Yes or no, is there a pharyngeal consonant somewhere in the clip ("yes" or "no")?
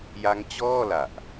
no